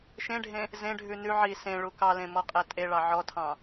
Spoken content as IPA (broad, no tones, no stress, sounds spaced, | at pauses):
ʃ ẽ ɖʱ ẽ | z ẽ ɖʱ ʉ n ʉ ʕ i s ẽ ɭ u k ɑ l ẽ m ɔ qʼ æ tʼ e ɭ ɑ ʕ ɔ tʰ ɑ̃